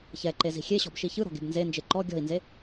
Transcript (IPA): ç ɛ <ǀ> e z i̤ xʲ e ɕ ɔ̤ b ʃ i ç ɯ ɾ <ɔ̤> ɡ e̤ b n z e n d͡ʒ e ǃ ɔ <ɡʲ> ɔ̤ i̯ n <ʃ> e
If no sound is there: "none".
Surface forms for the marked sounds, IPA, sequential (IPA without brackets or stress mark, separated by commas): ǃ, ɔ̤, ɡʲ, z